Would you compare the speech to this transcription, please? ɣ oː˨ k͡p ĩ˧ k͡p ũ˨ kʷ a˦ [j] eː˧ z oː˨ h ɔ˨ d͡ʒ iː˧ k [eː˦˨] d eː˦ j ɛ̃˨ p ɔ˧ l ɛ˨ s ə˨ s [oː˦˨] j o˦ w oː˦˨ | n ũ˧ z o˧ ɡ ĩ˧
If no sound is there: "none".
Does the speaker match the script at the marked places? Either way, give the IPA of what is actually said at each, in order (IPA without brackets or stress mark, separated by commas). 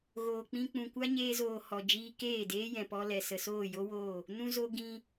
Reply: ɲ, eː˦˨, oː˦˨